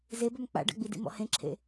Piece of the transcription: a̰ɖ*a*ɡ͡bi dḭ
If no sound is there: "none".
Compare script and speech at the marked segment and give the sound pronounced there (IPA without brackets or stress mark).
a̰